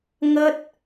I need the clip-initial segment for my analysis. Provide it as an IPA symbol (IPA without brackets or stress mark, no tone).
ŋ